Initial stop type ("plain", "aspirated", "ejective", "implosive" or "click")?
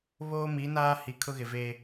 aspirated